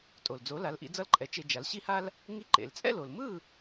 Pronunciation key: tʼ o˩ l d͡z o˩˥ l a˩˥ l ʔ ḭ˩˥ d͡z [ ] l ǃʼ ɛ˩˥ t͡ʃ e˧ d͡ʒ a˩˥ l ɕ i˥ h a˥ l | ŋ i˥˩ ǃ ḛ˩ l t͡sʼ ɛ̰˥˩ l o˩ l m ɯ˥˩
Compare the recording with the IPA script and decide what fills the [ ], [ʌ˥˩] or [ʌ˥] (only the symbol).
ʌ˥˩